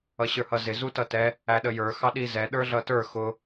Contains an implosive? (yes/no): yes